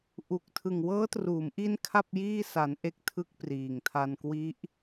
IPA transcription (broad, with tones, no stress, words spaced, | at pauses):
ʔu˨˩k̚ tʰɯ˨˩ŋwɤː˦˥truː˩˦mʔi˦˥n kʰa˥˩p̚jiː˥˩ sa˩˦n ʔe˥˩k̚tʰɯ˥˩k̚priː˨˩ŋ tʰa˧nkwi˦˥ʔ